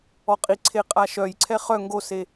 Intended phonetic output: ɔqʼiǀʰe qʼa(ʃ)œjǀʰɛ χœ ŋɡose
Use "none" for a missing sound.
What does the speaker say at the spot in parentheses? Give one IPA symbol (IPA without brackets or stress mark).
ʃ